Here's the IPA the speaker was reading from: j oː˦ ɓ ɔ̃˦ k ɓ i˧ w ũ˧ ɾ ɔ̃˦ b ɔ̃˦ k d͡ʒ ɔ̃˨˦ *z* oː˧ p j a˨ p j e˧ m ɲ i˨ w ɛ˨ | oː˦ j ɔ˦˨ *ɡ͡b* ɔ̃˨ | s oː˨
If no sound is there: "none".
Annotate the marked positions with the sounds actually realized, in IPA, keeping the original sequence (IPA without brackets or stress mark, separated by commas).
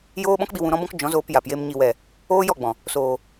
z, ɡ͡b